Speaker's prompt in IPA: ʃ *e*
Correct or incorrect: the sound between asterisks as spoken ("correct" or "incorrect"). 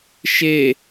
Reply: correct